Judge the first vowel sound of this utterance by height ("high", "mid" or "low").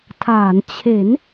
low